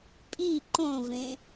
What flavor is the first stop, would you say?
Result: ejective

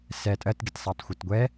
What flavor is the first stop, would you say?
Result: ejective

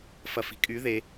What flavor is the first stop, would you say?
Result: ejective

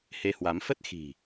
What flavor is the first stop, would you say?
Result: plain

